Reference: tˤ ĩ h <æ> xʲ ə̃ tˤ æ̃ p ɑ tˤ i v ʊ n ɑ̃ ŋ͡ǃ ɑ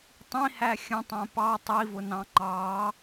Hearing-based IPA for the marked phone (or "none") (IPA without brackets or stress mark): æ